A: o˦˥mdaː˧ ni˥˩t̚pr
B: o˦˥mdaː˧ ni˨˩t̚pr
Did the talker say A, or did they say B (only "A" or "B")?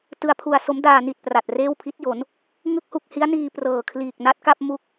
B